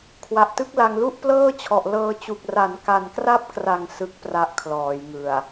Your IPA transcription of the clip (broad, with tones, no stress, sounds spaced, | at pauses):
kʰ w a˨˩ ʔ t ɯ˦˥ k̚ l a˧ ŋ l u˥˩ ʔ p l ɤː˥˩ t͡ɕʰ ɔ˨˩ ʔ l ɤː˧ t͡ɕ u˨˩ k̚ r a˩˦ n k a˨˩ n k r a˦˥ p̚ k r a˨˩ ŋ s ɯ˦˥ k̚ p r a˦˥ ʔ kʰ l ɔː˩˦ j ŋ ɯ˨˩ a̯